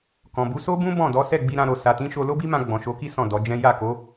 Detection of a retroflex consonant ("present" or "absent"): absent